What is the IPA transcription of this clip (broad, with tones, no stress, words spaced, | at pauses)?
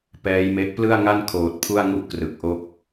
pɛː˦˥jme˦˥ʔ plɯ˥˩a̯ŋa˥˩n kʰoː˨˩t̚pʰu˥˩a̯ŋu˥˩ʔ krɯ˨˩k̚ʔo˥˩k̚